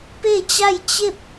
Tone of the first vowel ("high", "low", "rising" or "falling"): falling